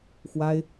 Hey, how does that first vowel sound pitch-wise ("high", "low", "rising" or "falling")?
high